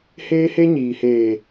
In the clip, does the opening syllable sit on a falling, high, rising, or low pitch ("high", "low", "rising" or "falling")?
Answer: high